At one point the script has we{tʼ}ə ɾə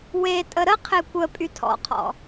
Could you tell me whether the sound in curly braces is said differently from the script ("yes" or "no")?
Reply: no